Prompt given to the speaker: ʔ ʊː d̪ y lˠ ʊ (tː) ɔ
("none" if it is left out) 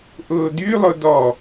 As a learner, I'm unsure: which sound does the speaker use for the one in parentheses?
d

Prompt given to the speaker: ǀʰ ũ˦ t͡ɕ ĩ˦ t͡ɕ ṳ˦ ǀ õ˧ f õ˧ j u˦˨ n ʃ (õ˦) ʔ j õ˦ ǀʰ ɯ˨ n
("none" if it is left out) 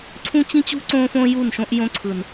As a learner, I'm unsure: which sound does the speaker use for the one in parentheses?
õ˦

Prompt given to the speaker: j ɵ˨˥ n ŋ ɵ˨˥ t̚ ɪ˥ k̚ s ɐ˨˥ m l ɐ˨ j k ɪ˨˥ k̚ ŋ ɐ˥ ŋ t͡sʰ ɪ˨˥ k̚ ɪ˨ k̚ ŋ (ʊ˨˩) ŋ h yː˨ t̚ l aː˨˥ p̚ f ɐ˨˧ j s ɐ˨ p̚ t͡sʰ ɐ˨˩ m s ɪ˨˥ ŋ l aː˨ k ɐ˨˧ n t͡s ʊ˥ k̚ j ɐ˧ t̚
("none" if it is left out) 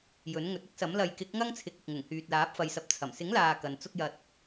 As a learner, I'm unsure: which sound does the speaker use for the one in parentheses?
ʊ˨˩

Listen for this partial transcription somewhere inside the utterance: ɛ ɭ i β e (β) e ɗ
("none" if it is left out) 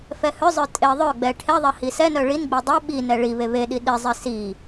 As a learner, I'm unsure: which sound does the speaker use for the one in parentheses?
β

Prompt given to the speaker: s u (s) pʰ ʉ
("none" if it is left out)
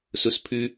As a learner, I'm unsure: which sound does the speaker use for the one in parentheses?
s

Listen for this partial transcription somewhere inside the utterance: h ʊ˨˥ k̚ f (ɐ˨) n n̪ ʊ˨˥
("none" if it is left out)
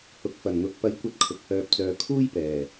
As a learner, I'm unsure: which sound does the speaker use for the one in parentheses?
ɐ˨˩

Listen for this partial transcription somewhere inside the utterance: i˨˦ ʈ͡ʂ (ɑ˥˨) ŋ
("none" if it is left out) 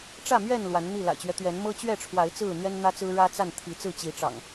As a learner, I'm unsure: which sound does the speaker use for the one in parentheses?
ɑ̰˨˩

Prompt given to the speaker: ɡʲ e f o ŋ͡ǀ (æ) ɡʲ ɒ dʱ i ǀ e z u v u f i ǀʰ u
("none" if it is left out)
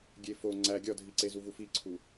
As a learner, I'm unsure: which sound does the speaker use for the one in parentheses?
æ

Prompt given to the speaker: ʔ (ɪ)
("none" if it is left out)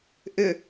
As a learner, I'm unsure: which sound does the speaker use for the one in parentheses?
ɪ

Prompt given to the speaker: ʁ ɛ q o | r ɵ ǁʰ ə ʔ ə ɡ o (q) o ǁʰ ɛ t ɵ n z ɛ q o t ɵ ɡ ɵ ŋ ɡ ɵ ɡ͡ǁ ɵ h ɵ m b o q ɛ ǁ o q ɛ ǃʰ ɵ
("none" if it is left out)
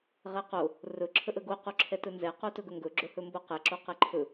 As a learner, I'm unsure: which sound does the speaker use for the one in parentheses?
q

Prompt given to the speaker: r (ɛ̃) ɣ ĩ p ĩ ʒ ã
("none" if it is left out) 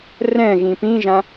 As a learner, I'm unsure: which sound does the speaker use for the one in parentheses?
ɛ̃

